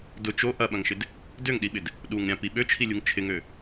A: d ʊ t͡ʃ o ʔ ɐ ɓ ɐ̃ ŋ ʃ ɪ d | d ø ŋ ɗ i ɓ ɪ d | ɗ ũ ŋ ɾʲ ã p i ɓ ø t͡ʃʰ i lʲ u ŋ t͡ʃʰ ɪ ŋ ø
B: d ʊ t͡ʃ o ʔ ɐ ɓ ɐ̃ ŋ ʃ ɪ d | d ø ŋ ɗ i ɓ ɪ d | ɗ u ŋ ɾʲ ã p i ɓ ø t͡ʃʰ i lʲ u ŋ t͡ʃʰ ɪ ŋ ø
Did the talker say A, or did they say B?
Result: B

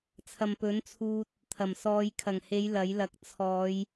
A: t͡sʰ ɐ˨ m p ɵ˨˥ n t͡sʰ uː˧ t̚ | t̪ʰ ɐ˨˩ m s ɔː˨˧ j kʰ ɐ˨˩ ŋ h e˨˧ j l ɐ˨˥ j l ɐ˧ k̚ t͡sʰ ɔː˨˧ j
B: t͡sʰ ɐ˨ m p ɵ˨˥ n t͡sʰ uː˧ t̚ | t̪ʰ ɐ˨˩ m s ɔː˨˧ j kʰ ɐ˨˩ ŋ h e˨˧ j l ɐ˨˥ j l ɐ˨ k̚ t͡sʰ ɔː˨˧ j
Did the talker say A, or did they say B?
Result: B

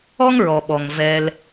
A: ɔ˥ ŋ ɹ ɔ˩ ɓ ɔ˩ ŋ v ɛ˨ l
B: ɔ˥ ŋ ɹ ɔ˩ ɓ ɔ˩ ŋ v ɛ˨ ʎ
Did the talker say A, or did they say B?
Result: A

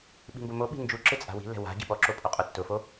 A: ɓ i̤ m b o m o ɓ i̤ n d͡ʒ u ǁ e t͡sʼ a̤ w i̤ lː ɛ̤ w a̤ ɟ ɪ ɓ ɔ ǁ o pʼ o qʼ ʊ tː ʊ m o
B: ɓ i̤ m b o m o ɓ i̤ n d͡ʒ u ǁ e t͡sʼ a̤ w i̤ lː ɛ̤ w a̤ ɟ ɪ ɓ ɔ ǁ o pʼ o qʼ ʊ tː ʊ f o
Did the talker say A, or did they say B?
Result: B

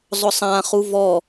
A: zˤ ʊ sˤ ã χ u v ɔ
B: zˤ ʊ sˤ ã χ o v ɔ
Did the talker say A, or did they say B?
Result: A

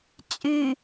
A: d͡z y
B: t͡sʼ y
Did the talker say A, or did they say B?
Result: B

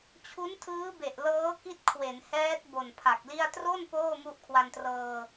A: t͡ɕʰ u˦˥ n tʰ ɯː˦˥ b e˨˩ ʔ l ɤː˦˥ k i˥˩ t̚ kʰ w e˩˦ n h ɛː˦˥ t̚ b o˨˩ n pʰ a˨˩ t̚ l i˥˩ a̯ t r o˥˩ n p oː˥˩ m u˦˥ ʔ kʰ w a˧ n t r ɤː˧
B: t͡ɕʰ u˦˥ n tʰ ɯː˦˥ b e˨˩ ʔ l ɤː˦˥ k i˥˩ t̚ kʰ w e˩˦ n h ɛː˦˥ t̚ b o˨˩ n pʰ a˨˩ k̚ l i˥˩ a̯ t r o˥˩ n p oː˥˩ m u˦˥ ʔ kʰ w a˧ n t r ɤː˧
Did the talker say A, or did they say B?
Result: B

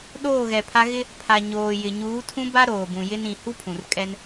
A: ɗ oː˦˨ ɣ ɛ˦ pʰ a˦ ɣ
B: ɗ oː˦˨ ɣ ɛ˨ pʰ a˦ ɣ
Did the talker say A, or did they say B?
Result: B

